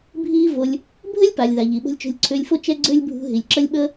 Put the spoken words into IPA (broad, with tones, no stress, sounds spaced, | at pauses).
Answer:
bʱ iː˦ v o˧ lʲ | bʱ ɘ˦ lʲ p a˨ lʲ ð a˨ ʎ i˨ ɓ o̤˧ lʲ t͡ʃ o̤˧ lʲ ǀʰ ʏː˧ lʲ f o˦ t͡ʃ ɛ˦ ɡ͡ǀ ʏː˦ lʲ bʱ ṳ˧ ɦ i˨ lʲ ǁ ə˦ lʲ ɓ ə˦